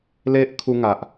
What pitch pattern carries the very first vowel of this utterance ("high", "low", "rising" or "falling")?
high